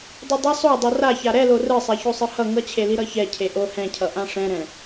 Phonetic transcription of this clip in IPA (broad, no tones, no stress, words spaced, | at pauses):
dˤodˤʌ sˤodˤʌ raça ɾɛlo rɯsˤɛçosˤɯ hʌ ŋʌt͡ɕʰeli ɾʌçɛ cʰeʔo hɛ̃cʰʌ ʔãʂɛ̃ɾɛ̃